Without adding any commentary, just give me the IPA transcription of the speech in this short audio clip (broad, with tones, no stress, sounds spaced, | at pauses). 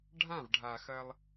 ɖʱ ã˦˨ v ɖʱ a˨ x ɐ˦ lˠ